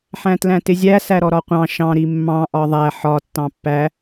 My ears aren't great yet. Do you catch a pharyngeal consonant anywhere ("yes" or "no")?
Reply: yes